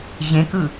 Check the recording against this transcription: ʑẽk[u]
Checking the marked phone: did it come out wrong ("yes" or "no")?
yes